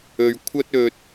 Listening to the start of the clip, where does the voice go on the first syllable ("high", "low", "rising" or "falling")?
low